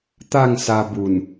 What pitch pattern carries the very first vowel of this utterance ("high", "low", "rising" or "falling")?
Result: falling